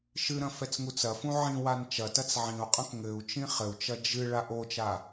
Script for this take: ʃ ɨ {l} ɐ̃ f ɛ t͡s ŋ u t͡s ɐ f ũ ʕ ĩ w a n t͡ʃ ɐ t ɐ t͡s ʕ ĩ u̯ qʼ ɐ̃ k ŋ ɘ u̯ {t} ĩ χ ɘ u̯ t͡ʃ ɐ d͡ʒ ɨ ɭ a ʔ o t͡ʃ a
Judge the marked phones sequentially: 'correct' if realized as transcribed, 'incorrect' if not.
incorrect: ɾ, incorrect: t͡ʃ

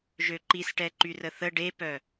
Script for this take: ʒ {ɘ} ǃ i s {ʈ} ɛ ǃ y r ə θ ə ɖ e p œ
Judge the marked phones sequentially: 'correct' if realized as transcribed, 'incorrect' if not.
incorrect: ø, correct

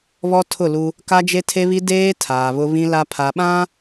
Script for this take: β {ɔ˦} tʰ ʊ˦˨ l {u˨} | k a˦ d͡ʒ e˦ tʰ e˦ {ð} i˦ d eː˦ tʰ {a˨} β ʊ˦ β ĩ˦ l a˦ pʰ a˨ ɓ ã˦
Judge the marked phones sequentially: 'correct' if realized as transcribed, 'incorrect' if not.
correct, incorrect: u˦, incorrect: β, incorrect: aː˨

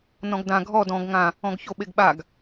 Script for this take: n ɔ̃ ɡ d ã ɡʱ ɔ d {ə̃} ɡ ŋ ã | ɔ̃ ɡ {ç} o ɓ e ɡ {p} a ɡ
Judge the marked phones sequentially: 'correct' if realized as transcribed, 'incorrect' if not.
incorrect: ɔ̃, correct, incorrect: ɓ

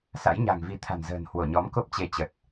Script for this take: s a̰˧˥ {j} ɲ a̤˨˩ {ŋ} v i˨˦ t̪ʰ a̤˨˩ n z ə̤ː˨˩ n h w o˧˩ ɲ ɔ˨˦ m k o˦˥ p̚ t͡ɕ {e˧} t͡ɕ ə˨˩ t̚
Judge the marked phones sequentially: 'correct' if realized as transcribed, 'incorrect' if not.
correct, correct, incorrect: e˨˦

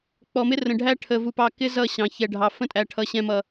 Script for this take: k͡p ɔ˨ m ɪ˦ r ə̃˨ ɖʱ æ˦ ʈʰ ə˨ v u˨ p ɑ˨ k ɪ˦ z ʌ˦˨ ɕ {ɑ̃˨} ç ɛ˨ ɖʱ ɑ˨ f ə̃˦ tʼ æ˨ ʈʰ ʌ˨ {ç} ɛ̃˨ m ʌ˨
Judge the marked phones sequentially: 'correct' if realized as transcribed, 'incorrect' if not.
correct, incorrect: ɕ

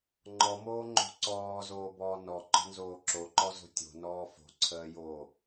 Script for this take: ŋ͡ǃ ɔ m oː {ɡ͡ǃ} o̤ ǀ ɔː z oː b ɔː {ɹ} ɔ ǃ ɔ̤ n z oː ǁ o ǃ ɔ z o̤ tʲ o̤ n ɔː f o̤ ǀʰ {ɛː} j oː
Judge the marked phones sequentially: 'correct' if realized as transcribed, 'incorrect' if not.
incorrect: ŋ͡ǃ, incorrect: n, incorrect: əː

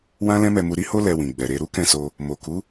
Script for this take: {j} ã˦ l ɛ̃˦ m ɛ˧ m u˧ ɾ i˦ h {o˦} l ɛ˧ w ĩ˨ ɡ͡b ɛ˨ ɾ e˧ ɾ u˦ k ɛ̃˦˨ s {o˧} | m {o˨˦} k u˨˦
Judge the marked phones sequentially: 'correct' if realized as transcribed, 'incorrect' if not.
incorrect: w, correct, correct, incorrect: o˨

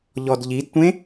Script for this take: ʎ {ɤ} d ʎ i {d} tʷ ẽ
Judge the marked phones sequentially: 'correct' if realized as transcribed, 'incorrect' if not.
incorrect: ɔ, correct

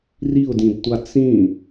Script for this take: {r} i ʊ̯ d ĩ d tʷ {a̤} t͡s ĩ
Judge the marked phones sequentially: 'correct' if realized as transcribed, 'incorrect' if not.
correct, incorrect: a

